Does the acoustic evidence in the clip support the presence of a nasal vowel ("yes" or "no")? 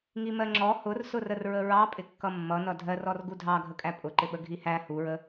no